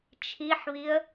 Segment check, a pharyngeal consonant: present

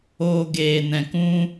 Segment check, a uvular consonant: absent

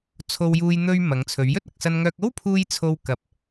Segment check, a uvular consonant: absent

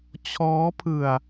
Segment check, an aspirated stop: present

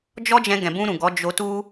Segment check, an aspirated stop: absent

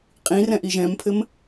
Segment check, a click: absent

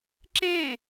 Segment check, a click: present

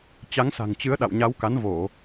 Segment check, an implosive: present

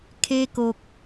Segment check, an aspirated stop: present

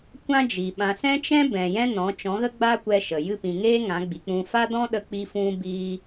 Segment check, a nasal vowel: present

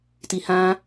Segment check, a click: absent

